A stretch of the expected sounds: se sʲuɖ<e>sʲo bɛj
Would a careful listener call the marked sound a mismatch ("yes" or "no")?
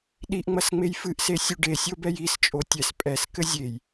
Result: no